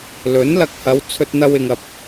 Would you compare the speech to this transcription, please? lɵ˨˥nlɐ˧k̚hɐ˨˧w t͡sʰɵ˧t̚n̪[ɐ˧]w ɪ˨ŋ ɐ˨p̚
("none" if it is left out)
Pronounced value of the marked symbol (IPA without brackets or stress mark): ɐ˧